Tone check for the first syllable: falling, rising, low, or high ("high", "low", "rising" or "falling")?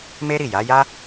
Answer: high